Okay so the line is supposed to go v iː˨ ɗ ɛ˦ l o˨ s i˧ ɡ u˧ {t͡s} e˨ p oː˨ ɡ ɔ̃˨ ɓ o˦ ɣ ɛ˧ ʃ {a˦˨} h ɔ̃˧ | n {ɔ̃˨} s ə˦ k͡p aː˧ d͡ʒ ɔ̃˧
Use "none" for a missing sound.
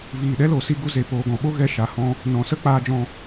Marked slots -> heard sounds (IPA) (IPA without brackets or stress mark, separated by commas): z, a˨, ɔ̃˨˦